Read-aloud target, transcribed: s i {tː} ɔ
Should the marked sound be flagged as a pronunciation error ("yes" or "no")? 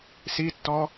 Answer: no